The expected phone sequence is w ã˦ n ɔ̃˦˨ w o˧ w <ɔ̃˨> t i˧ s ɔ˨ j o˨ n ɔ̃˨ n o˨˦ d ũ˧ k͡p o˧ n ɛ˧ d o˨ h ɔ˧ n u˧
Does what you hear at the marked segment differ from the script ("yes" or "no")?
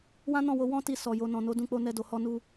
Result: yes